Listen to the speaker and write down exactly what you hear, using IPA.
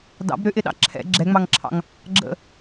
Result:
d ɑ̰ b ɾ ʏ ʔ ɪ ɗ ɑ̰ ǁʰ ɛ̰ ɡ͡ǁ ɛ ŋ͡m ɑ ŋ ǁʰ ɑ̰ ŋ | ɡ͡ǁ ə̰

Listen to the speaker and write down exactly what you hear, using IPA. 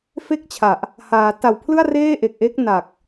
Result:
f e˥˩ k̚ t͡ɕʰ a˨˩ ʔ | h aː˩˦ t a˨˩ w pʰ l ɯ˥˩ a̯ r eː˥˩ ʔ e˨˩ k̚ ʔ e˦˥ k̚ n a˨˩ k̚

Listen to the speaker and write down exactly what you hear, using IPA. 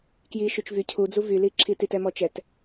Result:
k j i ʃ y t͡ʃ v y cʰ u d͡z u v y l i ǁʰ i t i t ɛ m ɔ t͡ʃ ɛ t

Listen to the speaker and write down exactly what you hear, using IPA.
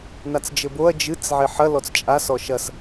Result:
n a t͡s d͡ʒ ɘ b o ɐ̯ d͡ʒ ɨ t͡s ʕ e ħ ɐ l ɔ t͡s t͡ʃʼ a s ɔ ʃ ɐ s

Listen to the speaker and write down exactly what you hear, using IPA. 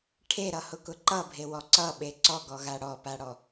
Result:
ʈʰ e ɾ ʌ h ʊ k ʊ ǃ ʌ bʱ e w ɔ ǀ ʌ ɓ e ǀ ɔ ɡ ɔ ɣ a ɽ ɔ p a ɽ ɔ

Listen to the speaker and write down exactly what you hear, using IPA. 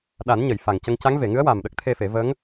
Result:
ɗ a˨˩˦ n ɲ ə˨˩˨ j f a˨˩ ŋ c ə˧ ŋ c a˧˥ ŋ v e˨˩˨ ŋ ɨ˧˥ ə̯ w a˨˩ m ɗ ə˦˥ k̚ t̪ʰ e˧ f e˨˩˦ v ə˧˥ ŋ

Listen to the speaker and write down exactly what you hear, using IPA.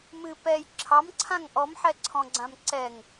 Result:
m ɨ p ɛ j ǁʰ ɑ m ǀʰ ã ŋ ʔ ɔ m ħ ɛ ǀʰ ɔ̃ ɡ͡ǀ ã m ǀ ɛ ŋ

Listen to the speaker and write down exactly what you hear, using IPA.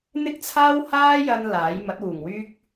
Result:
n̪ ɪ˥ k̚ t͡sʰ aː˥ w h aː˥ j ɐ˧ n l aː˨˥ j m ɐ˨˥ t̚ w uː˨˩ ŋ w yː˥ k̚

